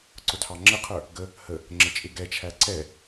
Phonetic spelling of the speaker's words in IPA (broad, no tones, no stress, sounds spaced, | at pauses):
ǀ ʊ tʰ ɑ ŋ͡ǁ ə qʰ ə˞ | ɡ ə | h ə | ŋ͡ǁ ə t͡ʃʼ ɪ ɡ ɛ t͡ʃʰ æ ǀ ɛ